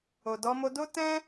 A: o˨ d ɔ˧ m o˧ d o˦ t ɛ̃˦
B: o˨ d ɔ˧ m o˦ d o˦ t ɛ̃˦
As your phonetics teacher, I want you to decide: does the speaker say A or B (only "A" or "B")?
A